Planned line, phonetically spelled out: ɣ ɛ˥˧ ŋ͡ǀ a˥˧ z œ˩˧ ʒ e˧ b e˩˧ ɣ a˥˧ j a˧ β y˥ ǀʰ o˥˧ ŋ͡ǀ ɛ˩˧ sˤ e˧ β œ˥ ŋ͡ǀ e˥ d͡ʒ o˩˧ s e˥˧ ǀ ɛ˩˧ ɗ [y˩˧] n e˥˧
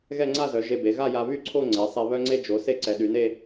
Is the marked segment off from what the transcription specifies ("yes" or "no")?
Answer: no